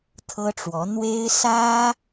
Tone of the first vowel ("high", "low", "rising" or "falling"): high